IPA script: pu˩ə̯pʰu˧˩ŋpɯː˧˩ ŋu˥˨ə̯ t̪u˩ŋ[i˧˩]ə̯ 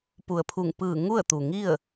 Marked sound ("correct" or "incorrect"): incorrect